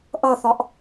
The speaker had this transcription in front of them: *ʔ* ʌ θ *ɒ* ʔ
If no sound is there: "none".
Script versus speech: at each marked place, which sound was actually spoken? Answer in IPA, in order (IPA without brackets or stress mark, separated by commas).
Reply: ʔ, ɒ